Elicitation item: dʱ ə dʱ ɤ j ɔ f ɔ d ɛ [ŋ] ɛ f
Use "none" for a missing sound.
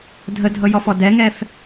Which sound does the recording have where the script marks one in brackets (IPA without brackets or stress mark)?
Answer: ŋ